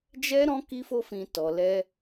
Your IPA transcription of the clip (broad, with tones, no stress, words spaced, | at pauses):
d͡ʒɛ˦ɾɔ̃˦ ki˦fo˦fĩ˧ tɔ˧lɛ˦